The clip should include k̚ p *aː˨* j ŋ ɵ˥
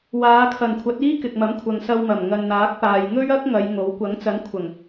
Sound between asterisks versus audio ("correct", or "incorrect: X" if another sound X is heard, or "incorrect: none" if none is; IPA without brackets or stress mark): correct